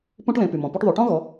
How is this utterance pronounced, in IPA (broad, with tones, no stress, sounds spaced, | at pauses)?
p ũ˦ ʈ l ẽ˩˧ p y˩ m ɔ̃˩ p y˦ ʈ ðˤ u˩˧ ʈ ɔ̃˦ ɣ ɔ˩˧